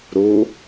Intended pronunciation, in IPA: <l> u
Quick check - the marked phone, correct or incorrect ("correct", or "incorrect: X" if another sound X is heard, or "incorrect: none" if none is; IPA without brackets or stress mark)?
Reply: incorrect: ɾ